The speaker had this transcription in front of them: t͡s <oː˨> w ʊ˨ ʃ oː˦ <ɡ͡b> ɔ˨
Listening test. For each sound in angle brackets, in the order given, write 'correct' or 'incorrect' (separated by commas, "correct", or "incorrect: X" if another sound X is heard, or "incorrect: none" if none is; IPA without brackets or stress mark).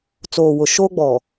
correct, correct